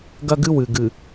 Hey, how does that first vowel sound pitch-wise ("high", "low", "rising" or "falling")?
high